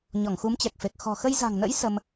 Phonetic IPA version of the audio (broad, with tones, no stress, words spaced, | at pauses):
ɲɔ˧˩ŋxu˨˦mt͡ɕɛ˨˩k̚fe˨˩k̚ xɔ̤˨˩xə˧jza̤˨˩ŋnə̰˧˥j sə˧m